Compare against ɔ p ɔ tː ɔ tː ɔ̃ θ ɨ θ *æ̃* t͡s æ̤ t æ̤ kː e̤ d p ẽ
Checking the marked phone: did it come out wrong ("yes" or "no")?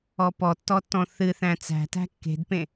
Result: no